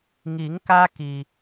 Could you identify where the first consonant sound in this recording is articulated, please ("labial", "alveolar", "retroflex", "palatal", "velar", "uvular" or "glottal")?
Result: velar